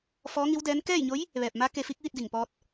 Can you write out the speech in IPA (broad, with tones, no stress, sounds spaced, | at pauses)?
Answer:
f ɔː˧˥ ŋ i˧˥ w d ɛː˧˥ n k ɛː˥˨ j ɲ o˧˥ j | ʋ ɛː˧˩ p̚ m a˧˥ k e˧ f i˧˥ k̚ ʋ i˥˨ t̚ d i˧˩ ŋ p ɔː˧ t̚